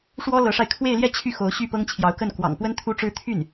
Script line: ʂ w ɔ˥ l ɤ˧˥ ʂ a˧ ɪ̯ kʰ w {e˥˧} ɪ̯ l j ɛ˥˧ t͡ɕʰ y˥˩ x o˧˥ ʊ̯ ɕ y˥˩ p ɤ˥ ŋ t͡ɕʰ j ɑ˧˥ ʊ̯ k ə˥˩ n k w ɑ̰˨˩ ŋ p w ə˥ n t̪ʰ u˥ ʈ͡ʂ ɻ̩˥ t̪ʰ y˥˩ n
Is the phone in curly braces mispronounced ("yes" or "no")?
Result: no